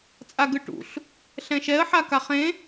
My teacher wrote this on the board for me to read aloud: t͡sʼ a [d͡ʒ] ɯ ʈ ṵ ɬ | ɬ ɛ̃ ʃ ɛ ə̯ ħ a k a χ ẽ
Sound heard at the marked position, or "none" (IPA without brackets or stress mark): ɡ